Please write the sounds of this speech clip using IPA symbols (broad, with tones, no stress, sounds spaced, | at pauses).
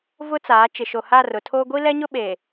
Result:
v ʊ˦ t͡s aː˨˦ t͡ʃ ɪ˨ ʃ o˨ h a˦˨ r ʊ˨ tʰ oː˦ ɡʷ i˦ l ɛ˦ ɲ ʊ˦ ɓ e˨